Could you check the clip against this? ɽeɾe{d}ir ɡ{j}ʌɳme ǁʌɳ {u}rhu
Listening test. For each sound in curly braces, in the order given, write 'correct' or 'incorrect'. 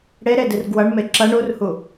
correct, incorrect: w, correct

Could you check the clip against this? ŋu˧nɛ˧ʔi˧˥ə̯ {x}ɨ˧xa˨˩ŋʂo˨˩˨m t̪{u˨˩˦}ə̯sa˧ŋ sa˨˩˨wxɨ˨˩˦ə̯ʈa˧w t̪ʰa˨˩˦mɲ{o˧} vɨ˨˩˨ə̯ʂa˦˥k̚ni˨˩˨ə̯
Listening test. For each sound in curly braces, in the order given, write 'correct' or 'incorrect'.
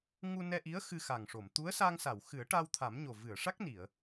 correct, incorrect: u˧˥, incorrect: o˨˩

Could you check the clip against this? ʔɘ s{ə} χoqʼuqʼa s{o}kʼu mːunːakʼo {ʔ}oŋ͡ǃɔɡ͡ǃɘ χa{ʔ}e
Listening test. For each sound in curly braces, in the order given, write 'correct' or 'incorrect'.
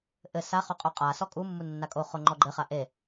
incorrect: a, incorrect: ɔ, incorrect: χ, correct

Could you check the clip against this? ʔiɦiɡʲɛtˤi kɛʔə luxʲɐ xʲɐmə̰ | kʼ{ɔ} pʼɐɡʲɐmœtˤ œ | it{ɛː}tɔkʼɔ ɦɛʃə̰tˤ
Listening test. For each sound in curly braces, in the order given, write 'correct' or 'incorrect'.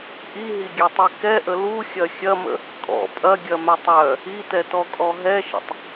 incorrect: ɔ̰, incorrect: ɛ

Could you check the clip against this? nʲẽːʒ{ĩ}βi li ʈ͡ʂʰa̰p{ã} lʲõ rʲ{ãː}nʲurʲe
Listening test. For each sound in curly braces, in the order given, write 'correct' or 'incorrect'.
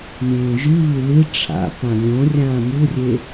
incorrect: i, correct, correct

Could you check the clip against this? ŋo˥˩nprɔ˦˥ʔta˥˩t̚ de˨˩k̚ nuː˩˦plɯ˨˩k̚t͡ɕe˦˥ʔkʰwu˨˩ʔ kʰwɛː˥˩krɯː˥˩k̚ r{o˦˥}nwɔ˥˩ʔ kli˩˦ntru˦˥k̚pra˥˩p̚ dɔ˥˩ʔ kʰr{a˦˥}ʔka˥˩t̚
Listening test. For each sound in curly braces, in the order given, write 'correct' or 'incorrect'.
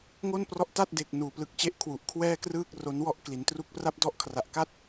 correct, incorrect: a˨˩

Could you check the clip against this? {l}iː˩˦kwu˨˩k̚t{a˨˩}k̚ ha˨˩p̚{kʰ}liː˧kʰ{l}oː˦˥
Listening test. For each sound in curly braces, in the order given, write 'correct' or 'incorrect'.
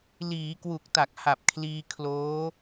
correct, correct, correct, correct

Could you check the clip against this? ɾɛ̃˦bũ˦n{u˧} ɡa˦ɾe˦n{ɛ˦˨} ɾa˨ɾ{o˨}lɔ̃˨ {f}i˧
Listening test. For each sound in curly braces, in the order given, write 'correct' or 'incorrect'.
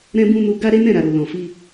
correct, incorrect: ɛ̃˦˨, correct, correct

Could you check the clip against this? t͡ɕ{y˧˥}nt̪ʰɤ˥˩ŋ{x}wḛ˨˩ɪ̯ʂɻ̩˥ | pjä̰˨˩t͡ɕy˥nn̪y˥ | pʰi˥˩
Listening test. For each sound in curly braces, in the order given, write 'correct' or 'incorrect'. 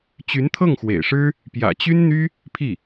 correct, correct

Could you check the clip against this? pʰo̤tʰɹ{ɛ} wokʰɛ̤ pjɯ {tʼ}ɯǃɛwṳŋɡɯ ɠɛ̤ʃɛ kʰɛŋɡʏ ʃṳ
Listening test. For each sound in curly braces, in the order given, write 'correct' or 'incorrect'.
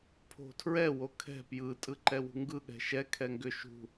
correct, correct

